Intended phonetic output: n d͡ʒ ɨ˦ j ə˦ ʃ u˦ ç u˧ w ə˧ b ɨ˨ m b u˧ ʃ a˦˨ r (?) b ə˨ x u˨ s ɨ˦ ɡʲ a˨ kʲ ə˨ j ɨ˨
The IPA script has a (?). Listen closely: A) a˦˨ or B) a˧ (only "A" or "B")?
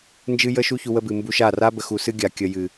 B